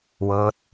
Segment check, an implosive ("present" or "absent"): absent